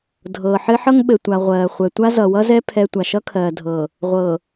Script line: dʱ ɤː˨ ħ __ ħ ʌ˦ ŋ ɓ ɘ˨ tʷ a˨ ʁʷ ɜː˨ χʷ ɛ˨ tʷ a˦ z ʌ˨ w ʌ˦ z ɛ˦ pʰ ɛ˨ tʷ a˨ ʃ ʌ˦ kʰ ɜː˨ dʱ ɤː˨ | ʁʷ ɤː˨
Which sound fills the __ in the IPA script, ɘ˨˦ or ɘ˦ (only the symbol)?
ɘ˦